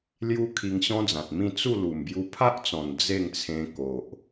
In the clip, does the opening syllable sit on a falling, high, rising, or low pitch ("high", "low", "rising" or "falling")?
high